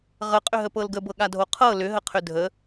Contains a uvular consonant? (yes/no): yes